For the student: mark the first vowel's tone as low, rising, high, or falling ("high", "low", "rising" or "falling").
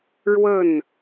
falling